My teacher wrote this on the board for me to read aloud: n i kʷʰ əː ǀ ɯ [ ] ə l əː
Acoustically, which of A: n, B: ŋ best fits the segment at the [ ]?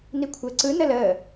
A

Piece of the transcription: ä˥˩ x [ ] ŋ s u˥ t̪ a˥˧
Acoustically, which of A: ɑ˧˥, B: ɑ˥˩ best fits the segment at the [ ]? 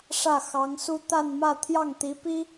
A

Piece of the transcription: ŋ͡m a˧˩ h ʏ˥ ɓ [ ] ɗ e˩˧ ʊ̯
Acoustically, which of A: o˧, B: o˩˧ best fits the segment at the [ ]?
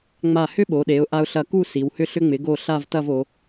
B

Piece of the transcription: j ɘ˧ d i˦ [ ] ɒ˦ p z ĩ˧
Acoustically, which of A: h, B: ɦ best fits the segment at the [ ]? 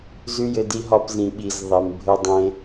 B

